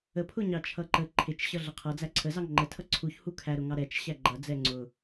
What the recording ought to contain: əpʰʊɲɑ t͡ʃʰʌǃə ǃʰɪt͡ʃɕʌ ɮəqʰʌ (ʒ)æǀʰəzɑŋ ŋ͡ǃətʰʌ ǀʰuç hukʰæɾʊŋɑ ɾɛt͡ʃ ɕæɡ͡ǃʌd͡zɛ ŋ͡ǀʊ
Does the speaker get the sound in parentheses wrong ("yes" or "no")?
yes